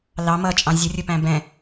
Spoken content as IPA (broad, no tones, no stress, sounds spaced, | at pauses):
l ɑ m ʌ t͡ʃʼ ɑ̃ zʲ ʊ rʲ ʊ p æ̃ b ɛ̃